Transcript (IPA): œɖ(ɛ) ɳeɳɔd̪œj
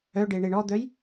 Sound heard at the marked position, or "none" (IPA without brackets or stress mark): e